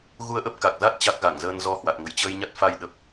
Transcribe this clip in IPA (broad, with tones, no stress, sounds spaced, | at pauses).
ɣ u˧ ə̯ ʔ ə˦˥ p̚ k a˨˩ k̚ z a˦˥ t̚ t͡ɕ a˦˥ k̚ ɣ a˧˩ ŋ z əː˧ n z ɔ˧ h w a˨˩ t̚ ŋ ə̤˨˩ j t͡ɕ əː˧ j ɲ a˦˥ t̚ f a˧ j ɗ ə˨˩ p̚